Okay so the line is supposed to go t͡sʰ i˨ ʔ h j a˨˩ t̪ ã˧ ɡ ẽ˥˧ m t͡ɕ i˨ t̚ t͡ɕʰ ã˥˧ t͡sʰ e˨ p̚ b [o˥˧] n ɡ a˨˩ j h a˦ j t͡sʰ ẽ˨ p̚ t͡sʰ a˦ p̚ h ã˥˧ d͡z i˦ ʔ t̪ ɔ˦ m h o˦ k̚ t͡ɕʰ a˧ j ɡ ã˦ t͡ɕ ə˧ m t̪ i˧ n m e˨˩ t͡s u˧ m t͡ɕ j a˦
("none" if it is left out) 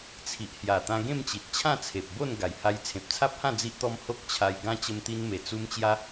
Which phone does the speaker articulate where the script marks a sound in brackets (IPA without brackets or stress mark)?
o˥˧